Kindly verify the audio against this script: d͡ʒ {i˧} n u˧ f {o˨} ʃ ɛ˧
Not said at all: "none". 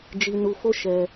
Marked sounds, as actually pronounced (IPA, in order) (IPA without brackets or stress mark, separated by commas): i˧, o˦